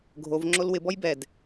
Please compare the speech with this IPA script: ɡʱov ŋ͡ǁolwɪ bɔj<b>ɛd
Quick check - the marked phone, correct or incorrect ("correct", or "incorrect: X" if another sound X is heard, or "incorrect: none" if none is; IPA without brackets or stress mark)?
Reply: correct